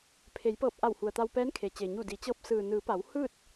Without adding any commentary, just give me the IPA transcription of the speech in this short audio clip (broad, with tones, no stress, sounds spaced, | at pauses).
pʰ e˩˧ j p ɤː˧˩ p̚ ʔ a˧˩ w h u˩ ə̯ t̪ a˧ w p ɛː˧˥ n kʰ e˩ t͡ɕ e˩ ɲ u˧˩ d i˩˧ t͡ɕ ɤː˧ p̚ s ɯː˩ n ɯː˩˧ p a˩˧ w h ɯː˥˨ t̚